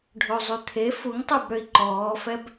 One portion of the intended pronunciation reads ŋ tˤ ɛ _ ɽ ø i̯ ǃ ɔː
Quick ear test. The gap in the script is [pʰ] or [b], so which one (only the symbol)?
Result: b